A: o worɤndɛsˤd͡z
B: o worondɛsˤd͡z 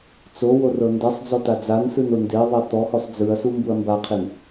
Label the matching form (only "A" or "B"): A